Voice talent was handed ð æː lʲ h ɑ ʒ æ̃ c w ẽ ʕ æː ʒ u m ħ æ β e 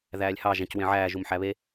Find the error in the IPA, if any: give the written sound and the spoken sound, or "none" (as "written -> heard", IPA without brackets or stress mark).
none